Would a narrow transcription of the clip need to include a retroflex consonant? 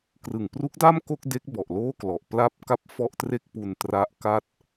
no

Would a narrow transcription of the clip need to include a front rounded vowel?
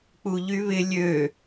yes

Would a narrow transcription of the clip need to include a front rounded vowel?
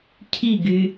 yes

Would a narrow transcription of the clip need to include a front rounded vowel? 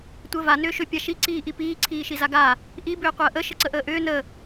yes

